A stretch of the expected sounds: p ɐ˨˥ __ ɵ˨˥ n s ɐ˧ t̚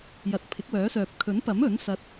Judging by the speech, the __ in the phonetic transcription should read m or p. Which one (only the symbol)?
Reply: m